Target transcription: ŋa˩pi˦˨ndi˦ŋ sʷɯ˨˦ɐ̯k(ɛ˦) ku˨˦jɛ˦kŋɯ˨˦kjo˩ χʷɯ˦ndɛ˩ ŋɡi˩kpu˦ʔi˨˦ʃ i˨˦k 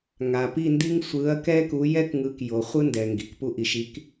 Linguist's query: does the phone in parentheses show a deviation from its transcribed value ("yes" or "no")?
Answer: no